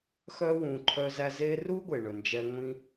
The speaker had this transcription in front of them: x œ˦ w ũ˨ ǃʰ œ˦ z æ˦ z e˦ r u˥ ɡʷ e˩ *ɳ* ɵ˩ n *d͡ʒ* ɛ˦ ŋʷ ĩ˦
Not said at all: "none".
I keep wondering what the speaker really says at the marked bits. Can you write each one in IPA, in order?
ɳ, d͡ʒ

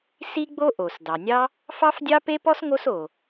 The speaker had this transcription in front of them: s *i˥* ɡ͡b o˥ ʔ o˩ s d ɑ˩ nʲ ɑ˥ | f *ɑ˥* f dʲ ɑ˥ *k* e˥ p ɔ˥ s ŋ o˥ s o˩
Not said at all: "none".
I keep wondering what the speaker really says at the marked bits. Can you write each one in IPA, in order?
i˥, ɑ˥, p

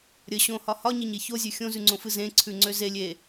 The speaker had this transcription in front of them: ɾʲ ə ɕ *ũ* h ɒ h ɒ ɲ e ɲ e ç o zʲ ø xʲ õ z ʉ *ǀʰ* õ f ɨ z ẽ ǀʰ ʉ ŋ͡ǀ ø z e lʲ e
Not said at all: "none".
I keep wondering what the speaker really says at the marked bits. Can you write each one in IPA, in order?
õ, ŋ͡ǀ

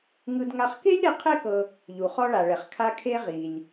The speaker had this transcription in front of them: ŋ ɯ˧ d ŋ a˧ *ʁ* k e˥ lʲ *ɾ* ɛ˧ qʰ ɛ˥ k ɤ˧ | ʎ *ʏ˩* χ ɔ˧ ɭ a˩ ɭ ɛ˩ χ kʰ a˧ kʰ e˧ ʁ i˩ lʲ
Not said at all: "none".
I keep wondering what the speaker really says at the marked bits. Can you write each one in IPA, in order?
χ, ɾ, u˩

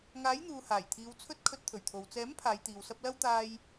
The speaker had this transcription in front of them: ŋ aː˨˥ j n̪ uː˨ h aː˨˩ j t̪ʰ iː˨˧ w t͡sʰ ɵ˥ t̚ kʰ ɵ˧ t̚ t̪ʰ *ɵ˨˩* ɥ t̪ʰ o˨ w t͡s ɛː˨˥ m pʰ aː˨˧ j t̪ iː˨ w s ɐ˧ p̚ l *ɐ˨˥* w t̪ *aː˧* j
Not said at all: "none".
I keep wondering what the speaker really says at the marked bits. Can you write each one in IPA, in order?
ɵ˨˩, ɐ˥, aː˧

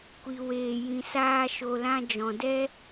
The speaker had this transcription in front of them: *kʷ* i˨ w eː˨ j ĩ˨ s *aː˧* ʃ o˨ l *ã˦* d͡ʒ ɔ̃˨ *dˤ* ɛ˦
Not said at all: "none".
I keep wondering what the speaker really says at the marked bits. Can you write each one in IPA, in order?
kʷ, aː˧, ã˧, d

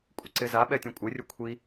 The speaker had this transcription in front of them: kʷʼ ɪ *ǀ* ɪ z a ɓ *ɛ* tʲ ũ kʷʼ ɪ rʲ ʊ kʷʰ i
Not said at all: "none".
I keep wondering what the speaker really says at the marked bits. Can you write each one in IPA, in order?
ǀ, ɛ

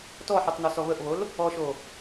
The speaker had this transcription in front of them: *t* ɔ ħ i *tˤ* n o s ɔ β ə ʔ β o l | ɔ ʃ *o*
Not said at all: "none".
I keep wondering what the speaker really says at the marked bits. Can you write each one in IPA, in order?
t, tˤ, o

